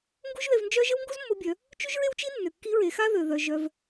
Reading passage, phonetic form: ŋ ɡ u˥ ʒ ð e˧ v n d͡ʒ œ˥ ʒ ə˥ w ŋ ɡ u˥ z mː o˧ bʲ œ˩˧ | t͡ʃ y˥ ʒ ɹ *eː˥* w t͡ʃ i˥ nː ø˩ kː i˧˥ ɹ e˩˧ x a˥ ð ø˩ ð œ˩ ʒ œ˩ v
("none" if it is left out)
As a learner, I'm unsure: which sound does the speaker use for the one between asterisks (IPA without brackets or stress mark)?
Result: e˥